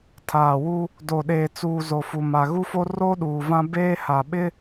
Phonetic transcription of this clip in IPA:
tʰaː˨wu˦ | do˨ɗeː˨t͡suː˨ zo˨fu˨ma˨ ɣu˦fo˦ roː˦ɗuː˨vã˦ beː˦ha˨ ɓɪ˦

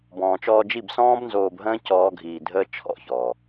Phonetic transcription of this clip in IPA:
bɔ̃ː˨t͡ʃɔː˧d͡ʒi˦˨b sɔ̃ː˦bnzoː˧bɦə̃ː˦ cɔː˦ɡʱiː˧ dʱəː˦ t͡ʃʰɔ̰˦˨çɔː˨

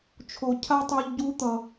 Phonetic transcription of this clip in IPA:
t͡ʃʰo˨ cʰa˦tˤo˧ʎ ɟu˧t̪ʌ˨

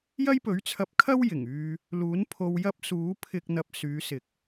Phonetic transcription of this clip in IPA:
jɐ˥jpɵ˨˥ɥt͡sʰɐ˧p̚kʰɐ˥w jɪ˨˩ŋyː˧ | luː˨˥npʰo˧w jɐ˥p̚suː˨˥ pʰɪ˧k̚ n̪ɐ˧p̚syː˨˧sɪ˨k̚

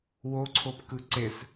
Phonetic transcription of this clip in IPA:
woǀʰopkɯ ǀes

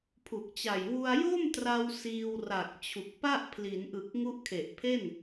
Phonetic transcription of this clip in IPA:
pʰu˨˩k̚t͡ɕa˨˩j wu˧a̯jo˥˩mtra˧w siː˧wra˨˩k̚ t͡ɕʰu˨˩k̚pa˥˩ʔ pʰli˩˦nʔɯ˨˩k̚ ŋu˦˥ʔkʰe˨˩ʔpʰe˥˩n

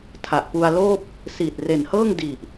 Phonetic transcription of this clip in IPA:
tʰa˨˩ʔpu˧a̯loː˥˩p̚ | siː˨˩t̚re˨˩nhɤː˥˩ŋ di˨˩ʔ

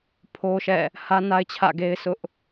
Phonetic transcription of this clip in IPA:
pʰo˦ʃɛ̰˦˨ | hä˦na˦ɪ̯t͡ɕʰä̰˦˨ɡe˦ɪ̯ sʊ˦ʔ

